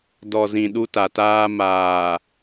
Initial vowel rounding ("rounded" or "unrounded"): rounded